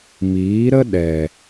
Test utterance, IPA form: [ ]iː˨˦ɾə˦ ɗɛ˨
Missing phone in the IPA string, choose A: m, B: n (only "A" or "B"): A